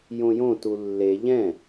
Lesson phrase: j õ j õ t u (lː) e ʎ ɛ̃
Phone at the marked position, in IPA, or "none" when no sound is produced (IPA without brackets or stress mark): lː